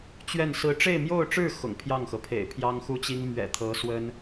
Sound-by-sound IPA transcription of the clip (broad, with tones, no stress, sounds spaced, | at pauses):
t͡ɕ ɥ ɛ˥˩ n s ɹ̩˥ ʈ͡ʂ e˥˧ ɪ̯ m j o˥˧ ʊ̯ ʈ͡ʂ ɻ̩˥˩ x ʊ̰˨˩ ŋ pʰ j ɑ˥˩ ŋ x ɤ˩ pʰ ḛ˨˩ ɪ̯ pʰ j ɑ˥ ŋ x u˥ t͡ɕ i˥ ŋ m ɥ ɛ̰˨˩ t̪ʰ ɤ˧˥ s w ə˥ n